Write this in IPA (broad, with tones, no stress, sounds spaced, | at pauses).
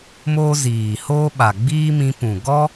m oː˦ z iː˨ h oː˦ ɓ a˨ ɡ͡b iː˦ m ĩ˧ p ũ˨ ɡ ɔ˦